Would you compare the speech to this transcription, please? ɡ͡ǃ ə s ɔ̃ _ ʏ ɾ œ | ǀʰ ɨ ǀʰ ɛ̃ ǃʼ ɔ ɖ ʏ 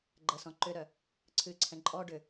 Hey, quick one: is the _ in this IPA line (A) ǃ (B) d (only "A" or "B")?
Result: A